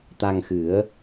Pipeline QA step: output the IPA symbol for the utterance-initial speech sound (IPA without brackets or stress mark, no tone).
t̪